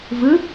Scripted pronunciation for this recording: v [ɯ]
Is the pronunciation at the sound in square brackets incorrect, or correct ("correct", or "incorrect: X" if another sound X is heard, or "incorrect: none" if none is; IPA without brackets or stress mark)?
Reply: correct